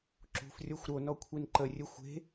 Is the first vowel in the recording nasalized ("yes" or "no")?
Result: no